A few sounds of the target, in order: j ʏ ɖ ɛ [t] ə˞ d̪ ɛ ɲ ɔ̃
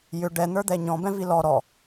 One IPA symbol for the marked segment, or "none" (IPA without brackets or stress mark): n̪